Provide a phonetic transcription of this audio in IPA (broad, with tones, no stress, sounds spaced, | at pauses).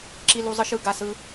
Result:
ǁ i˧ l u˧ zˤ ɯ˧ ʃ ɯ˧ ɡ a˧ s ɯ˧